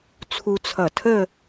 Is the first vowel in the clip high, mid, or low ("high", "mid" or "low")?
high